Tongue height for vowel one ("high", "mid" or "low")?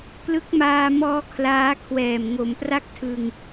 high